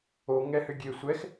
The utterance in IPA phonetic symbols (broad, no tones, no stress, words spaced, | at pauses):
o ŋɛhʏɡʲe sʷɛx